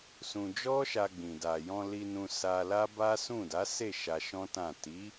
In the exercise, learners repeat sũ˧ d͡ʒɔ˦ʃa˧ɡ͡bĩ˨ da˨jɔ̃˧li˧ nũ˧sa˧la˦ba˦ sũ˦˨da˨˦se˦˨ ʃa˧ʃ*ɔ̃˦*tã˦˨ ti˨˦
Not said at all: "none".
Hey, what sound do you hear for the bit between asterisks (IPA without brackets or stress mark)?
ɔ̃˦